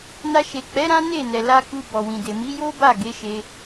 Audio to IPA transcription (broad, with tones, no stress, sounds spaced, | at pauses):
n a˧ ʃ e˨ k͡p ɛ˨˦ ɾ ã˦ n e˦˨ n ɛ˨ l a˧ k u˧ b ɔ˨ w ĩ˨ d e˨ m i˨˦ j o˦ b a˦˨ ɡ e˨˦ ʃ e˧